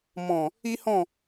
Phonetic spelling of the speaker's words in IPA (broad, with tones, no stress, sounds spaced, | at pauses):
m ɔ̃˨ | i˦ h ɔ̃˦˨